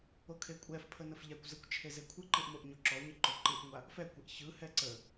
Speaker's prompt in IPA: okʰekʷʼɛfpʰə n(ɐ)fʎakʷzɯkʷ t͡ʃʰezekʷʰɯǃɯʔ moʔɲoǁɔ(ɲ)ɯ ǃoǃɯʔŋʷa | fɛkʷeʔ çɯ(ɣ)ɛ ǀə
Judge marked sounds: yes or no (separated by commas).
no, yes, no